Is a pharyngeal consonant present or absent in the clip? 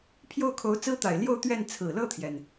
absent